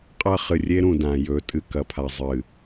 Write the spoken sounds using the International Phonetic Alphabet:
qʼɐ˦χɨ˨rʲe˦ ɾũ˨dã˨jɵ˨˦ tʼɨ˨kɐ˨pʰa˨zˤɨ˨

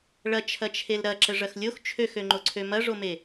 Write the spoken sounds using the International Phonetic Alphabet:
ɭɐt͡ʃʰɐt͡ʃʰel ɾɐǁəʐɐx lʲox t͡ʃʰøxøŋ͡ǃoǀʰø mɐʐome

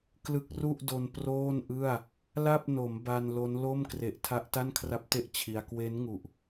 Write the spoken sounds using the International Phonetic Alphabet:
klɯ˦˥k̚ru˥˩ʔdo˧n proː˥˩nʔɯ˥˩a̯ | la˥˩p̚no˩˦m ba˧nlo˦˥nlo˥˩m kre˨˩ʔtʰa˦˥ʔ ta˥˩nkʰra˦˥p̚te˥˩ʔ t͡ɕʰi˧a̯ kwe˦˥nŋu˨˩ʔ

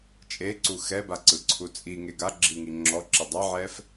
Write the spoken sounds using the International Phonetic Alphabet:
t͡ʃʼeǀu xɛbaǀɯǀʰu t͡sʼiŋe ɡaɡ͡ǁiŋi ŋ͡ǁɔǁe dˤaʕɛf

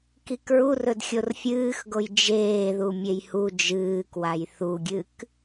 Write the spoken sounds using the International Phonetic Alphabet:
kikɹurɵd xʲorfʲɨːxɡoj d͡ʒeː ðumʲejhu d͡ʒɨːkwaj θuɡʲɨk

